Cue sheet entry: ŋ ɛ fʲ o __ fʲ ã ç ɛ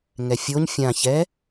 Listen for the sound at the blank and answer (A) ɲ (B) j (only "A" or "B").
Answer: A